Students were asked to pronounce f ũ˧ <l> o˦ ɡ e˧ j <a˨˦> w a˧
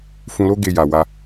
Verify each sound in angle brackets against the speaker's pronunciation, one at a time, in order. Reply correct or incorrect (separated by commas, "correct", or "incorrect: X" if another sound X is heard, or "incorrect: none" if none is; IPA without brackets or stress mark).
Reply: correct, incorrect: a˨